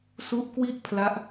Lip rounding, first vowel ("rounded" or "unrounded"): rounded